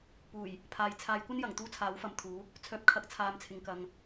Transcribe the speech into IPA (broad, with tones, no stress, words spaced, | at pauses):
puː˨˩j | pʰaː˨j t͡sʰaː˨˧jkʷɐ˥njɐ˨˩ŋ t̪uː˥t͡sʰaː˨˥w fɐ˨˧mt̪ʰuː˨˥ | t͡sʰœː˨p̚kʰɐ˨˥k̚ t͡sʰaː˨˧mt͡sʰɪ˨ŋkɐ˨ŋ